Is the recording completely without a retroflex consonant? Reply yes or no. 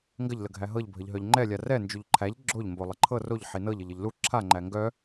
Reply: yes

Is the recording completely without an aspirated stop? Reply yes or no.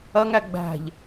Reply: yes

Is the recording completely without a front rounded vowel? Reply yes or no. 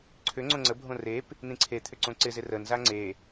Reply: no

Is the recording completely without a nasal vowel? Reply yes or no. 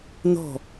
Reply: yes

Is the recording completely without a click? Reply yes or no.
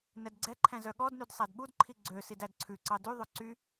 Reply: no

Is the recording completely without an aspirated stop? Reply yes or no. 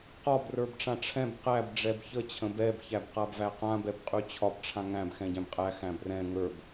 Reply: no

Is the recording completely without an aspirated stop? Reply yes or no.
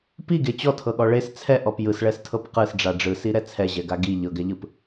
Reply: no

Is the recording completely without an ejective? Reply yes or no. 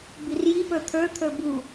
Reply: yes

